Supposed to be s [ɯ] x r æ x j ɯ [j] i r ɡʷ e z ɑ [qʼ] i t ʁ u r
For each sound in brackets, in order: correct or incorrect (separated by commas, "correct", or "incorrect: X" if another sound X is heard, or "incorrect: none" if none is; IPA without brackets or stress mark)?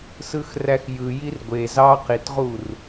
correct, correct, incorrect: q